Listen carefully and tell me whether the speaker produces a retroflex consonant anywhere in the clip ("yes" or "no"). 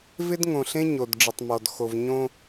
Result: yes